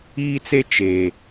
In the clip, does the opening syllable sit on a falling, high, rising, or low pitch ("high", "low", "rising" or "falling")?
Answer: high